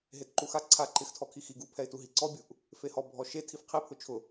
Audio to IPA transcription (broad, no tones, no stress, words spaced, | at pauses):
ɦetǃuxa ǀʰa ǃɪxtʰɔkʰi xi ɡupʰɛɪ̯tu ɦiǀɔbʲuʔ | fehɔ bʱɔʃe tʰifqʰipʰʊ t͡ʃʰʊ